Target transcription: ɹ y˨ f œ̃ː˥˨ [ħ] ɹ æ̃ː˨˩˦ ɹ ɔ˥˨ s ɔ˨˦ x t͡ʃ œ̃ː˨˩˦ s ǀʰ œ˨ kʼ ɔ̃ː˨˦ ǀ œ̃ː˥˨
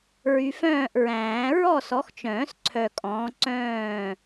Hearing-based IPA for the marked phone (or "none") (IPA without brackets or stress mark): ʔ